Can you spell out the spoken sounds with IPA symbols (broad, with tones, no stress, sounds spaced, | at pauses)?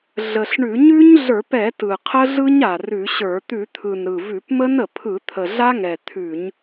ɮ ə˨˩ ɬ ɳ ʉ˧˩˧ ɲ ʉ˦˥ ɲ ɮ ə˞˧˩˧ p ɛ˧˩˧ t ɯ˨˩ qʰ ə˦˥ ɮ ɯ˦˥ ɲ a˨˩ r ʉ˧˩˧ ɕ ə˞˧˩˧ t̪ ʉ˧˩˧ t̪ʰ ɯ˨˩ n ɾ ɯ˨˩ v ʉ˧˩˧ p m ə˦˥ n ə˨˩ pʰ ɯ˧˩˧ t̪ʰ ə˨˩ ɮ a˦˥ ŋ ɛ˨˩ t̪ʰ ʉ˧˩˧ ɲ